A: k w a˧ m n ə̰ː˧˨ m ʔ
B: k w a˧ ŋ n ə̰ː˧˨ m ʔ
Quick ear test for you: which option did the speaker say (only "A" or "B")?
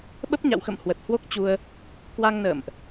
B